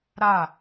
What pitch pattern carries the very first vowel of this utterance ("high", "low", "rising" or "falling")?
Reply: falling